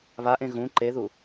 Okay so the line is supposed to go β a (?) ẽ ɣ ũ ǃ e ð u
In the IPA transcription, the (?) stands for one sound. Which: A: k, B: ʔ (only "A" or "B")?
B